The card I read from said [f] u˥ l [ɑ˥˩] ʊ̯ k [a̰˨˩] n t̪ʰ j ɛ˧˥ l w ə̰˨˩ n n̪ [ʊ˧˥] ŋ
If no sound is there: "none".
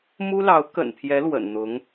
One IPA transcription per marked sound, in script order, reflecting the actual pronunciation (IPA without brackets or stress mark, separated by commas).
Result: m, ɑ˧˥, ə̰˨˩, ʊ˧˥